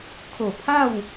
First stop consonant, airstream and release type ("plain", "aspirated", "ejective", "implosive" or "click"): aspirated